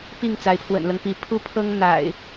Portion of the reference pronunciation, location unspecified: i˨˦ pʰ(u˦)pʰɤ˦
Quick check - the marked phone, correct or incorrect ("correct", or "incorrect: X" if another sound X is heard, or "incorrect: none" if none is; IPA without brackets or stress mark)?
correct